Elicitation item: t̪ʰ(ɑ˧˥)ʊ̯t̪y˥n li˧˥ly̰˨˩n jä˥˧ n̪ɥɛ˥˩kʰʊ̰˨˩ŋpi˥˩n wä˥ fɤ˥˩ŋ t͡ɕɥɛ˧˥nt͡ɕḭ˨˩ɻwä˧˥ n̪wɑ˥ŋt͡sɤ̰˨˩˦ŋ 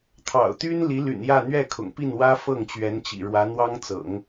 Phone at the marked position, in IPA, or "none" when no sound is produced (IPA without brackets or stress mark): ɑ̰˨˩